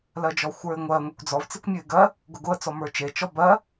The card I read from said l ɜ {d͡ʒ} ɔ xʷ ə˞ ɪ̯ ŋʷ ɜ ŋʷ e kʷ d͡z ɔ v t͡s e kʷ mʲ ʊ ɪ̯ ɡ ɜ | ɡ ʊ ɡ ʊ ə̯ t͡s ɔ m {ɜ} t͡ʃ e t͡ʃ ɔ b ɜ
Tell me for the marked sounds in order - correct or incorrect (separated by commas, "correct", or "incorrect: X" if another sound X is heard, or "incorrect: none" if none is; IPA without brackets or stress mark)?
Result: correct, incorrect: ə˞